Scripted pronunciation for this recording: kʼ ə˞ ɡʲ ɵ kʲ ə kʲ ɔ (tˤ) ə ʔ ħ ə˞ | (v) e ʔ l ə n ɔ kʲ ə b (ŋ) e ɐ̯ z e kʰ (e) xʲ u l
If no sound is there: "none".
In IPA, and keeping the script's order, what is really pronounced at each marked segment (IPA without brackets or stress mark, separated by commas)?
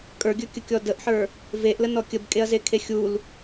d, v, kʼ, e